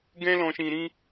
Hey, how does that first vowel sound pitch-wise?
high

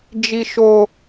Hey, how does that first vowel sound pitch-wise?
high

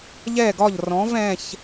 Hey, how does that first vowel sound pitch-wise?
falling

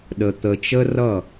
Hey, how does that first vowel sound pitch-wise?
low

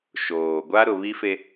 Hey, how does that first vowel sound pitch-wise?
low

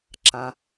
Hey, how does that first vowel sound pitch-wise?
low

